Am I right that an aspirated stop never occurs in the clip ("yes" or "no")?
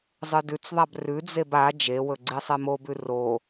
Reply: yes